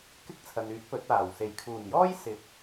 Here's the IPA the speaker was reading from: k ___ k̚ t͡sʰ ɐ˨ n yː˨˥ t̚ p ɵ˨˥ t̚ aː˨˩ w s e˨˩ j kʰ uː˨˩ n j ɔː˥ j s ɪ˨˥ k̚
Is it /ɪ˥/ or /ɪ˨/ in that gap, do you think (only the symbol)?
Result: ɪ˥